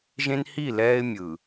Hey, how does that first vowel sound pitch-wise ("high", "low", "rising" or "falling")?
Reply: high